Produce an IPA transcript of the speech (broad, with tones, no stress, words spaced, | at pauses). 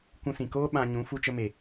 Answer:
kʷũ˧sĩ˨koː˦ ɓã˧ɲũ˨˦ fu˧t͡ʃə˧me˨